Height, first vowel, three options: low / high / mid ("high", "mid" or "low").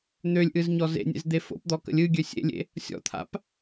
mid